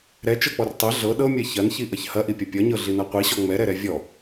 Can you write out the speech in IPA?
ɾ ɛ t͡ʃ ɤ k͡p ɔ r tˤ ɛ ɮ ɤ ɗ ɤ mʲ ɛ ç ɐ n ç i ʔ ʌ ç h ɐ ʔ i pʲ ɐ pʲ ʌ ɲ ɤ ɮ i n ʌ qʷ i ɕ ɔ ŋ͡m ɛ ɾ ɛ ɾ ɛ vʲ ɔ

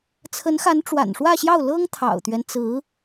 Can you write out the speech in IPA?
t͡sʰ ə˧˥ n x a˧˥ n ʈ͡ʂ w a̰˨˩ n ʂ w ä˥˧ ɕ j ɑ˥˩ ʊ̯ l ɤ˥ ŋ t̪ʰ ɑ̰˨˩ ʊ̯ t̪ ɥ ɛ˦ n t͡s ɹ̩˧˥

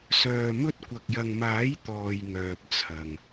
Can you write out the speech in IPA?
s œː˨ m ɵ˧ t̚ kʷ ɐ˨ k̚ j ɐ˨ ŋ m aː˨˥ j t̪ ɔː˨ j ŋ œː˨ p̚ t͡sʰ ɐ˨ ŋ

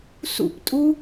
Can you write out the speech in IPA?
s ṵ p tʼ u

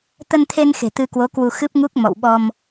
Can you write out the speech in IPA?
t̪ ə˧ n t̪ʰ e˧ n x e̤˨˩ t̪ ɨ˧ k w o˨˦ k w u˧ x ɨ˦˥ p̚ ŋ u˦˥ k̚ m ɔ̰˧˨ w ɓ ɔ˧ m

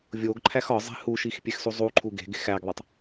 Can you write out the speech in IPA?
vʲ o ɡ ǃʰ æ x ɒ zˤ e̤ h u ʃ i x pʲ e x s u zˤ u ǃʰ u ɡ e̤ ɡ e̤ x æ ɡ ðˤ e tˤ

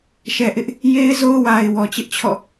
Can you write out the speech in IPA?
ʃ ɛ˨ ʔ ɪ˦ ʔ | j e˦ ɪ̯ z o˦ ʊ̯ w a˨ ɪ̯ w ɔ˨ t͡ɕ ɪ˦ ʔ t͡ɕʰ ɔ̰˦˨

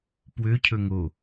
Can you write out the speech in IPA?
p w ø cʰ ɵ ŋ o

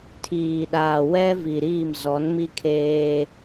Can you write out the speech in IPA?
tʰ iː˨ ɗ aː˨ w ɛ˦ v i˨ ɾ iː˦˨ m z ɔ˨˦ n m i˦ kʰ eː˦

